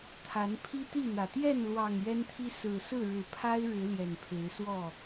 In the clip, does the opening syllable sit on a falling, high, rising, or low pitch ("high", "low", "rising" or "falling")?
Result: rising